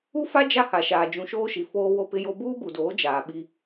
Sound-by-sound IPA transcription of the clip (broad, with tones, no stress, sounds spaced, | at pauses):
u˦ f a˦ d͡ʒ a˦ h a˨ ʃ aː˨ d͡ʒ ũ˨ ʃ oː˦ ʃ i˨ f oː˦ w o˦ p ɪ˦ j o˦ b uː˦ b u˨ d oː˨˦ d͡ʒ aː˨ ɓ i˦